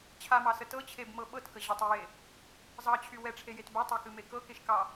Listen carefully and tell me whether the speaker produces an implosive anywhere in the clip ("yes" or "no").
yes